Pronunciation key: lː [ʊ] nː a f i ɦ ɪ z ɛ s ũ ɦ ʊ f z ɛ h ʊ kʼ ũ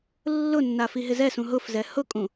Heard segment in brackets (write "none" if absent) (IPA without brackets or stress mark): ʊ